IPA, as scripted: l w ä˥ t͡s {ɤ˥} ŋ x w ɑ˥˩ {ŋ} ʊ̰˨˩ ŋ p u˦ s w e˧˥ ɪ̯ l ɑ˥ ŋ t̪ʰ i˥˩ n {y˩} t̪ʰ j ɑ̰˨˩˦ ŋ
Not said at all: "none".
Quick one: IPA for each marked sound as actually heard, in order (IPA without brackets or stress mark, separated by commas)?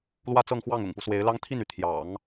ɤ˥˧, ŋ, y˩